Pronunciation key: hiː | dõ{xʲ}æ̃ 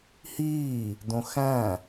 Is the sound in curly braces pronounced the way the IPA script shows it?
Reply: no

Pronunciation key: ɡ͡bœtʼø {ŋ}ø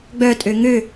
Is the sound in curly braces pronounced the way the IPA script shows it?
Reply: yes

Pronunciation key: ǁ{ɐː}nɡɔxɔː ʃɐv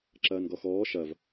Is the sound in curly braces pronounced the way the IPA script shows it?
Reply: yes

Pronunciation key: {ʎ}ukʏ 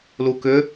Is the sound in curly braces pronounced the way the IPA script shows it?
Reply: no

